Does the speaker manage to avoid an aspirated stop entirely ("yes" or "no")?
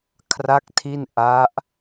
no